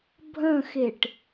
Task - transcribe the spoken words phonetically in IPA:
bʱə̃xeʈ

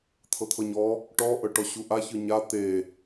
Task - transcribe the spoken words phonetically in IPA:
t̪ʰɤt̪ʰɤɲɔ | ʈɔ ʔɤʈɔɕuʔa çɯɲa t̪e

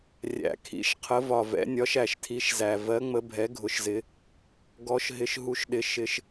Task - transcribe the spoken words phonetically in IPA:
rʲæ̰˨˩kʰḭ˨˦ʃ qʰə˨˦vɒ˨˩vɛ̰˨˦nʲɒ˨˦ʃ æ˨˩ʃtʰi˨˦ʃzæ˨˩ vɜ˨˦ŋ͡mə˨˦bʱɛ˨˦ ɡʱʊ˨˦ʃzɪ˨˦ | ɡɔ˨˦ʃ ɦɪ˨˦ʃɦu˨˦ʃɗɪ˨˦ ʃɪ˨˦ʃ

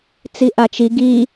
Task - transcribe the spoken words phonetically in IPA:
t͡siʔat͡ʃi ɡi

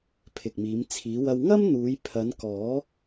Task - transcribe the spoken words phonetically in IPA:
pʰɪ˨k̚miː˨˧mt͡sʰiː˨˧wɐ˧w ŋɐ˥mn̪uː˨˧jpʰɐ˨˧n kɔː˨˥

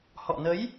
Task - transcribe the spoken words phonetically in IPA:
hɔ̰˧˨nə˨˦j

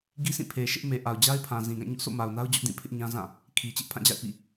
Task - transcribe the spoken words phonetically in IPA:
ɡi˦sĩ˦˨pʰe˨ʃɪ˦ʔ me˨ʔa˨ʊ̯d͡ʑa˦ɪ̯pʰã˨ zĩ˨ɡã˦˨ ɲʊ˦ʔso̰˦˨ma˨ʊ̯na˦ʊ̯ d͡ʑʊ˦ʔ dĩ˦˨pʰɪ˦ʔɲã˦zã˦˨ | kʰi˨t͡ɕɪ˦ʔpʰã˦˨d͡ʑa̰˦˨ɪ̯ pḭ˦˨

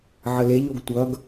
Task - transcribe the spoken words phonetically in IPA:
ʕəleʎoɡ tʷʌɡ

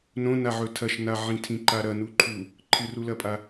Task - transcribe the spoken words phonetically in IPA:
nõnaʕɵ tʰɐʃnaʕĩ tʰĩǃaɾɐ nuǃʰu | ǃʰɨrulɐpʼa

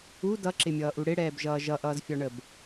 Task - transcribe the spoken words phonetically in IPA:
u dʌǁɪmʲʌːʔu ɽɪɽɛːbʒʌː ʒʌʔʌːzfʲɒɳəb

